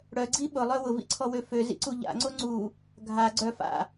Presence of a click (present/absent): present